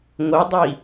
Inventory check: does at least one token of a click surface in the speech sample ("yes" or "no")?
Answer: no